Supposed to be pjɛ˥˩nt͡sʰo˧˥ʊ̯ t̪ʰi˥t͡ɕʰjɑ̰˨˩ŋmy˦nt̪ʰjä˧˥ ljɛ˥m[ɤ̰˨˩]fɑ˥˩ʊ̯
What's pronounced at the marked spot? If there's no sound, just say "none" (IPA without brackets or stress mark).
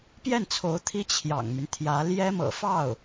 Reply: ɤ̰˨˩